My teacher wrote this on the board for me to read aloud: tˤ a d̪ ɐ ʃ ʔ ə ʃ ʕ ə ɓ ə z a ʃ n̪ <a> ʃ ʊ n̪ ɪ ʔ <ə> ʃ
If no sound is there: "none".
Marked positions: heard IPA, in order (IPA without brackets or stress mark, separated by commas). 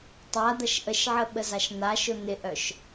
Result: a, œ